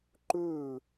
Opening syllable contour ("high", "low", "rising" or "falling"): falling